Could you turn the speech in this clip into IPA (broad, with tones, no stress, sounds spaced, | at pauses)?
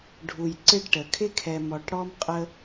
ɖʱ u˨ j ǀ ɪ˦ ɖ ʈ ə˨ kʰ ɪ˦ kʰ ɛ˨ m ɔ˨ ʈ ɽ ɔ˦ m qʼ ə˦